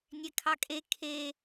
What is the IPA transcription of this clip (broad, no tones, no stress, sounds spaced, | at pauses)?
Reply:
nʲ ɛ kʰ ɑ kʼ e kʰ e